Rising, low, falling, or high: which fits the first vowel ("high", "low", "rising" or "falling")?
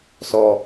low